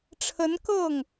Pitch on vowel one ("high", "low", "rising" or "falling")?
rising